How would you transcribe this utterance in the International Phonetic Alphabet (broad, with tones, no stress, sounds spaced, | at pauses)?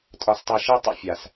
tʼ ɒ˨ s tˤ i˨ ʃ i˦˨ tˤ ə̰˦˨ fʲ a˨ s